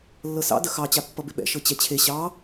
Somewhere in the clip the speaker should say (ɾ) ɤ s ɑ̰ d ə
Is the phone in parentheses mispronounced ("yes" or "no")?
yes